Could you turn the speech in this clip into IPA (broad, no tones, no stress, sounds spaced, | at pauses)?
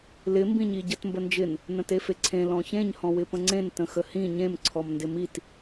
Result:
l ɪ m b ĩ ɲ i ɟ ə t m b ə n d͡ʒ ɪ n | n ə̃ t e f e ǀʰ ẽ l ɔ̃ ç ẽ ɲ h ɔ̃ w ɪ p ə̃ ŋ͡ǀ ẽ n t ə̃ x ə h ĩ ɲ ẽ m ǀʰ ɔ m n d ɪ m i t